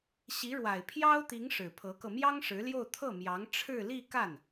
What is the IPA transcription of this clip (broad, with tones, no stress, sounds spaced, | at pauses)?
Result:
ɕ i˧˥ ɻ w a˨˩ ɪ̯ pʰ j ɑ˥ ʊ̯ t̪ i˧˥ ŋ ʂ ɻ̩˨˩ pʰ ɤ˧˥ k ɤ˧ m j ɑ˥ ŋ ʂ ɻ̩˧˥ l j o˥˧ ʊ̯ t̪ʰ ɤ˥˩ m j ɑ˧˥ ŋ ʈ͡ʂʰ ɻ̩˥˧ l i˥˧ k a˥˩ n